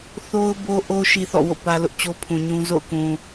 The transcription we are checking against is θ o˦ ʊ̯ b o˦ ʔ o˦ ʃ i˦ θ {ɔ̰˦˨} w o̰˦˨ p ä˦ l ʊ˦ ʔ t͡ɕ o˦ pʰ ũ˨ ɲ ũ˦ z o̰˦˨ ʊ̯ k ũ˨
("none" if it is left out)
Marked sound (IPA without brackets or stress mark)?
ɔ̰˦˨